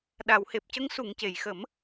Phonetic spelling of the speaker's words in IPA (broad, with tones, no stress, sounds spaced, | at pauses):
ɗ a˨˩˨ w h e˨˩ p̚ c ə˧˥ ŋ s u˨˩˨ ŋ c e˨˩˨ j x ə˨˩˦ m